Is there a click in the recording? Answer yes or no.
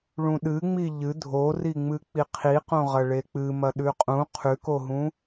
no